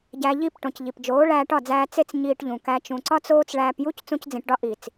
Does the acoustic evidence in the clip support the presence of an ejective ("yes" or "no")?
no